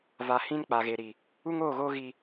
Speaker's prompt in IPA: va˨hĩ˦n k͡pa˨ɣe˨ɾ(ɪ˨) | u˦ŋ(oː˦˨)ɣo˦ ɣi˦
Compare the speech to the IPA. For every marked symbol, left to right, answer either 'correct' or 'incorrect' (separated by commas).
incorrect, correct